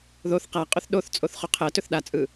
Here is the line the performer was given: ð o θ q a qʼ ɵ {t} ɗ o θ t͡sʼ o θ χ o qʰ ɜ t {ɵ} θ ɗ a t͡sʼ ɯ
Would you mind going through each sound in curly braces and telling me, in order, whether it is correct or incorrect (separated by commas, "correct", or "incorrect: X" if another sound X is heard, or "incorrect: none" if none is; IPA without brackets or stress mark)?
incorrect: θ, correct